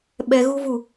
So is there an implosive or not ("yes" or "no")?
yes